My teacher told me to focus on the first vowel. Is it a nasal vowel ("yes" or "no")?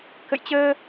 no